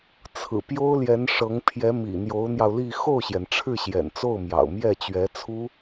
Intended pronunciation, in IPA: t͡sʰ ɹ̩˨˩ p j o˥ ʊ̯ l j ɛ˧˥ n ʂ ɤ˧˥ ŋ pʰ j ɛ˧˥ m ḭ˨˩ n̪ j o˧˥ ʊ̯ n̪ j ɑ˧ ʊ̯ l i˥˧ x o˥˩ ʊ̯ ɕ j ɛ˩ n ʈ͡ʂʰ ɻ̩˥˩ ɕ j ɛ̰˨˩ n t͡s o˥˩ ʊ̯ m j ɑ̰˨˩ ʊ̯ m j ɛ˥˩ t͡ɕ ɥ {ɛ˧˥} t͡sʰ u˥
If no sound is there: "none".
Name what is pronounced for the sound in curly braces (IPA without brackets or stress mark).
ɛ˧˥